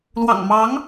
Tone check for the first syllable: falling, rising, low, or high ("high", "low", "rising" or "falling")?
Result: low